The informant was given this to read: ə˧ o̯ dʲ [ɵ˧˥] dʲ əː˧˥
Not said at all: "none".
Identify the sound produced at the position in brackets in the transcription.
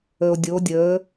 o˧˥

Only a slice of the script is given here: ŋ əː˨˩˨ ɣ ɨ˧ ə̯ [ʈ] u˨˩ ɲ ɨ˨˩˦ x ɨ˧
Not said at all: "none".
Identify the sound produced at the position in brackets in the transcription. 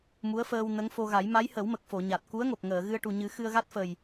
ʈ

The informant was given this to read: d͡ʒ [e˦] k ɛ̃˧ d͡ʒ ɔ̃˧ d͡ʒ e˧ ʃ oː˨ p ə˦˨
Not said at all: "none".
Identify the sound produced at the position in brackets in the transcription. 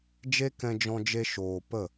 e˦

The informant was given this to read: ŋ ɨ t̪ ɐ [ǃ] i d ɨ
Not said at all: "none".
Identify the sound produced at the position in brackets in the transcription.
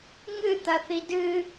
θ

